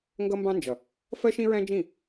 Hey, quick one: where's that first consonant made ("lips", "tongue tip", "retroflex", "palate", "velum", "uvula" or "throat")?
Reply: velum